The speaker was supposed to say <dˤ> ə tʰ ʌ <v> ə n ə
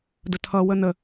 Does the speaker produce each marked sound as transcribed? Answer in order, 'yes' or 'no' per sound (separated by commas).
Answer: no, no